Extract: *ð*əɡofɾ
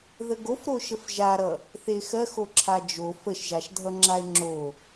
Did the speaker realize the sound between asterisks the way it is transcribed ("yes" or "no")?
yes